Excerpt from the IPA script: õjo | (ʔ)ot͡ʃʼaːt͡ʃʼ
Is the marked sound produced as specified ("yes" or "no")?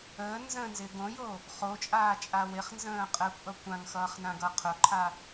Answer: no